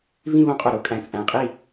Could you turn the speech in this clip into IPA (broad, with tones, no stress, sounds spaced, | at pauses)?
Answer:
v ĩ˥˧ β õ˧˥ qʼ o˨˩ ɾ o˥˧ kʼ æ̃˩˥ t͡sʼ æ̃˨˩ qʼ i˥˩